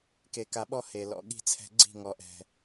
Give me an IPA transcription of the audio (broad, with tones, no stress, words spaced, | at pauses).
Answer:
ke˨ka˨ɓɔ˧ he˨ lɔ̰˨ɠi̤˦˨t͡sʰɛ̤˧ ɡ͡ǀi̤˦˨ ŋɔ˨ʔɛ̤˨